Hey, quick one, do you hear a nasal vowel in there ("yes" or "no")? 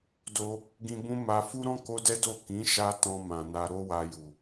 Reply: yes